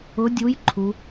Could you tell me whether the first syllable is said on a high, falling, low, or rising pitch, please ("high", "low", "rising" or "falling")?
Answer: rising